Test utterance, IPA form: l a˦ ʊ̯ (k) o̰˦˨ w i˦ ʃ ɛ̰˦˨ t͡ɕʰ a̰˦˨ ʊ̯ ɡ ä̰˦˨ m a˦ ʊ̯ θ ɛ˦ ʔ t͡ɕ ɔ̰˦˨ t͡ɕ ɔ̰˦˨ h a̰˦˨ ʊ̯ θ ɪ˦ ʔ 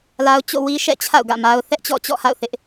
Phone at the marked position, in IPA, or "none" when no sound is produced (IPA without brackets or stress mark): t͡ɕ